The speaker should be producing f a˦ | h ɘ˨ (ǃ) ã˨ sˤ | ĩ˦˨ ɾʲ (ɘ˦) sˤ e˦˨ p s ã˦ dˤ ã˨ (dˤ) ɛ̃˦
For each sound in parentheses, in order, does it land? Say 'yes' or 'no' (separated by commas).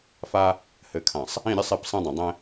no, yes, yes